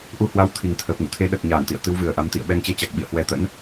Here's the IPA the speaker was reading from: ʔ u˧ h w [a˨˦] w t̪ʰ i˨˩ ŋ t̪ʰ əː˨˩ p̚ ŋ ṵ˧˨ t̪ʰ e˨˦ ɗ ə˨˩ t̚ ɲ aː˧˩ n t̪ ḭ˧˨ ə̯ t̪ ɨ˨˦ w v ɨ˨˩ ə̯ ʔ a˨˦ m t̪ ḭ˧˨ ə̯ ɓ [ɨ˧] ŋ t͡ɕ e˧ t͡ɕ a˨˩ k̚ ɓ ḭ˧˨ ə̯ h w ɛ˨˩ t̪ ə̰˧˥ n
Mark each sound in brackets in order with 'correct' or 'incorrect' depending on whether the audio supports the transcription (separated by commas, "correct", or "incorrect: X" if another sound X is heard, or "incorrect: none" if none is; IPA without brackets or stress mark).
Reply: correct, incorrect: ɛ˧